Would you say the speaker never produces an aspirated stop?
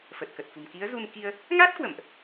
yes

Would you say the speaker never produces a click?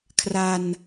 yes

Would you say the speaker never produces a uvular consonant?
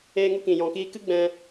yes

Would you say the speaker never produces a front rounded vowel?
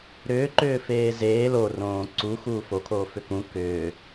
no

